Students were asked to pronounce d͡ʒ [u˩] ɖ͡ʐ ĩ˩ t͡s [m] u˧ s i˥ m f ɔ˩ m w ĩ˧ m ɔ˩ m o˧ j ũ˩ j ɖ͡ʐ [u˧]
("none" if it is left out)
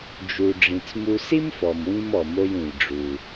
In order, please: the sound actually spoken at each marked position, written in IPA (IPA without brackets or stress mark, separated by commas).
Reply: u˩, m, u˩